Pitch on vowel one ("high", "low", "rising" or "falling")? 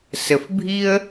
low